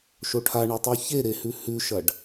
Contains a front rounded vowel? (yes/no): no